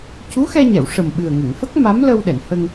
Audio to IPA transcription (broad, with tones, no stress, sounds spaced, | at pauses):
c u˧˥ x ɛ˧ ɲ ɛ˨˩˨ w ʂ ə˨˩ m ɓ ɨ˨˩ ə̯ ŋ ə˨˩˨ ŋ f ə˦˥ k̚ m a˧˥ m l ə˧ w ɗ ɛ˨˩˨ n h ə˧ ŋ